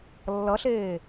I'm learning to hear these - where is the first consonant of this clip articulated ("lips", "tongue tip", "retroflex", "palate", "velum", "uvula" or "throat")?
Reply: tongue tip